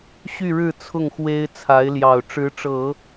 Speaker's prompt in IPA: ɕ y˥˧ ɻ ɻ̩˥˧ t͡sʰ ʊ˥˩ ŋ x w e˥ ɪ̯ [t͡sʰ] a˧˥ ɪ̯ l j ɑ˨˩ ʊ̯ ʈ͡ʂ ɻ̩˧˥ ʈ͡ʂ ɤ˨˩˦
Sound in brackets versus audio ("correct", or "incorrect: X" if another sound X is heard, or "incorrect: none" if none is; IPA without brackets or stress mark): correct